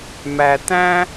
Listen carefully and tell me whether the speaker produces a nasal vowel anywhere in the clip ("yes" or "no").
yes